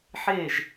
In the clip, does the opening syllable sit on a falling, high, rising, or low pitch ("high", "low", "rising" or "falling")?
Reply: falling